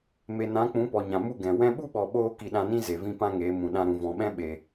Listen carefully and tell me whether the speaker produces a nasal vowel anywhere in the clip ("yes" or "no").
yes